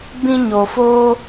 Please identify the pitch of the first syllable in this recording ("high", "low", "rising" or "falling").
high